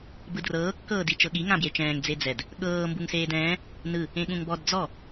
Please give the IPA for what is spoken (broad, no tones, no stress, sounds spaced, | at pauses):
b ɯ d r ɤː kː ɤː d i t͡ʃ ɤ ɠ i ŋ ã b j e t͡ʃ ɛ̃ː ŋ d͡z e d͡z ɛ d | ɠ ɤː m b u ŋ s eː d ɛ̃ː | n ɯ | ẽ ɠ ũ ŋ b ɔ d d͡z ɔ